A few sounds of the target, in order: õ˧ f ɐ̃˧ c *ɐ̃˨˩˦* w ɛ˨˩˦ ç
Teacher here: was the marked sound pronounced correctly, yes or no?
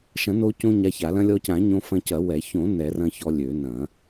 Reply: no